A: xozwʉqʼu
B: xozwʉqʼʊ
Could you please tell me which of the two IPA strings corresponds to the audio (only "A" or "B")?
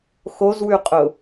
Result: B